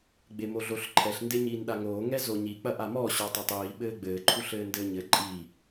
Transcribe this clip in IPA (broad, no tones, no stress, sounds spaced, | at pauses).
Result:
ɡ͡b e m o ɮ o ɬ ǃʰ ɛ ɬ n d e ɲ iː n ɗ a ŋ oː ŋ ɛ z o ɲ i k͡p ɐ ʔ a m ɔ ɕ ɔ tˤ e tˤ iː ɓ ɘː ɡ͡b ɘː ǃʰ u ɬ ɘː n d ɘː ɲ ɘ ǃʼ iː